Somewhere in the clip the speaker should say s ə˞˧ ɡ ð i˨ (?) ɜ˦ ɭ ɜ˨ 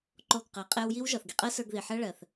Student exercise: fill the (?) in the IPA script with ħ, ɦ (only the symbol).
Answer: ħ